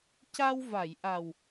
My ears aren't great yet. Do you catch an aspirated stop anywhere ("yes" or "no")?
no